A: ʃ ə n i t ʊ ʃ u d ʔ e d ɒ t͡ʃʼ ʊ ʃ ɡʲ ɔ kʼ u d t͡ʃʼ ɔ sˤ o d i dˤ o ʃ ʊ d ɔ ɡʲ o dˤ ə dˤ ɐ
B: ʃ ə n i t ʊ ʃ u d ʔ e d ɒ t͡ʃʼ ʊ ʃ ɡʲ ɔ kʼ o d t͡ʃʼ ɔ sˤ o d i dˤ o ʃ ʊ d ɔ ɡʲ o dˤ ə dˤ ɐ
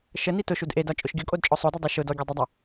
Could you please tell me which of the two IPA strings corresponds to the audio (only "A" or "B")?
B